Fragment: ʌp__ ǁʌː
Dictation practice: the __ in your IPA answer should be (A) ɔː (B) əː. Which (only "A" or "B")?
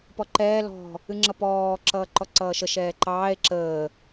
A